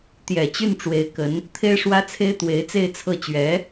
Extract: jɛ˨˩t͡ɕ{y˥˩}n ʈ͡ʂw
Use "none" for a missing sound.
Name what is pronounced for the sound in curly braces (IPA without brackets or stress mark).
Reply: y˥˩